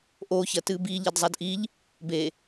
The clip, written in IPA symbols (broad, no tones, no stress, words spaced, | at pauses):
ʔoçɐ tɨbi ʎɐdzˤadʔiʎ | be